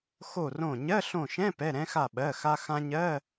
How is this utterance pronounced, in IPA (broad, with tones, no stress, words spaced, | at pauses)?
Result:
xo˧˩rõ˧˩ɲɜ˧˥˧ ɬõ˧˩ʃɛ̃˧˥˧pɛ˩˧˩ ɾɛ̃˧ xa˧˩ɓɜ˩˧˩xa˧ xã˧ɲɜ˧˥˧